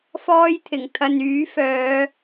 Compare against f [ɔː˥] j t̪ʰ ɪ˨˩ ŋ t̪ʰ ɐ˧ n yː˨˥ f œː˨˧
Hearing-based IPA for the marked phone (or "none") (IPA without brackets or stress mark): ɔː˥